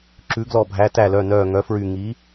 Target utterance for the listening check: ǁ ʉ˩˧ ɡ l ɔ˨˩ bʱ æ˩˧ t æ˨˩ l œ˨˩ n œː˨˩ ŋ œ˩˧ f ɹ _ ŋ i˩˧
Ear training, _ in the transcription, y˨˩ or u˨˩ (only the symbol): y˨˩